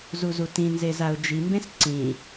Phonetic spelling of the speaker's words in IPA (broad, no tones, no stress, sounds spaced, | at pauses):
z u z u t ĩ n z e z a ʊ̯ d͡ʒ i m b ẽ s ǀ ĩ